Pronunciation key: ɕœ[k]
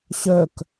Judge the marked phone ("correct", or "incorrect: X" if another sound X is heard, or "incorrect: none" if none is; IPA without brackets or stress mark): correct